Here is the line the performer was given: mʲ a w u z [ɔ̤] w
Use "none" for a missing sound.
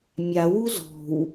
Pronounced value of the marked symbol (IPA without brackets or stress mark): ɔ̤